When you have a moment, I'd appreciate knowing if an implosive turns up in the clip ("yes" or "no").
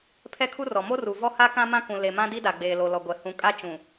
no